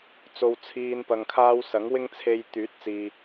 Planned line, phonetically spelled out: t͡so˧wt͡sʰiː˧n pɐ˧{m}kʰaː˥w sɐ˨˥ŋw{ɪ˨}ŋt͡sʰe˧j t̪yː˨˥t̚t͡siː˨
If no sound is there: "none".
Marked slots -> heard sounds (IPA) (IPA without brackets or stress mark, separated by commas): ŋ, ɪ˥